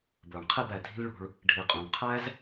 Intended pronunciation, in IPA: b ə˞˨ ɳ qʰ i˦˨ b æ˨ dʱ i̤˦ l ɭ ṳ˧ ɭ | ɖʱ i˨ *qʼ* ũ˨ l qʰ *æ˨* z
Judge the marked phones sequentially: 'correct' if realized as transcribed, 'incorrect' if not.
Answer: correct, incorrect: æ˦

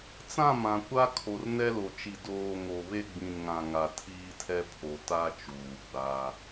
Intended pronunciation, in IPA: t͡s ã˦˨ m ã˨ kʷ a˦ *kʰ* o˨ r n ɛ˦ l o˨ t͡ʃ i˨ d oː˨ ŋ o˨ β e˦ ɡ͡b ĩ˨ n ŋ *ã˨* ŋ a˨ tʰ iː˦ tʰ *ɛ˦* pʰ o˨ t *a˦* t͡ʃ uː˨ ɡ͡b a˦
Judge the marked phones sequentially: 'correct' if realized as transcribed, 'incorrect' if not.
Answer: correct, correct, correct, correct

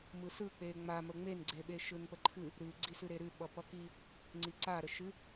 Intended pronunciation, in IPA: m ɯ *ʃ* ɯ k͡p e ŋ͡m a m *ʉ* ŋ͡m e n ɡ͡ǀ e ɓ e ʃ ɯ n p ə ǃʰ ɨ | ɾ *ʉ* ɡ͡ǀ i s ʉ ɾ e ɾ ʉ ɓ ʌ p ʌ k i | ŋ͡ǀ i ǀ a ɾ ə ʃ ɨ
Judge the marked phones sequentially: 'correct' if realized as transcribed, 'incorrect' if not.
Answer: incorrect: s, incorrect: ə, correct

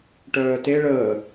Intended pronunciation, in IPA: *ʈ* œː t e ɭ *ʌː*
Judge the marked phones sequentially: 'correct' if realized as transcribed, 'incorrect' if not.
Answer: correct, incorrect: əː

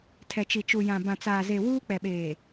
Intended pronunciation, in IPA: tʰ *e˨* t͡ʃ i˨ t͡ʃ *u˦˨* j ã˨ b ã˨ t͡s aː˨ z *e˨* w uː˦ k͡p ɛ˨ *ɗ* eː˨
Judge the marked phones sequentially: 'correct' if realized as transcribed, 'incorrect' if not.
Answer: incorrect: ɛ˨, incorrect: u˨, correct, incorrect: ɓ

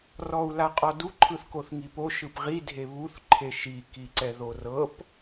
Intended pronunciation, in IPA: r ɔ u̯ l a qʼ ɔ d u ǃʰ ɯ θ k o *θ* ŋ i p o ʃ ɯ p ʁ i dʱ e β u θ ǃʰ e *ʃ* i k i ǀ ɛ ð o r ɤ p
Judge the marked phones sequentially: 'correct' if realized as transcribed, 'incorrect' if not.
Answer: correct, correct

